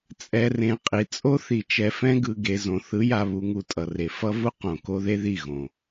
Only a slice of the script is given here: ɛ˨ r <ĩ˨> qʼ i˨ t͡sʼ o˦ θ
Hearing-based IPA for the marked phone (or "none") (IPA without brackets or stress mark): ẽ˨